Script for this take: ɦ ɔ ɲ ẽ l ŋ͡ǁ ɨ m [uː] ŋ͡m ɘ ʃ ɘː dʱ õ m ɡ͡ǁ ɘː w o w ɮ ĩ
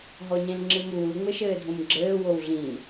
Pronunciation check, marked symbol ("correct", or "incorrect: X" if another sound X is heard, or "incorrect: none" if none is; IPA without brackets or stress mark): correct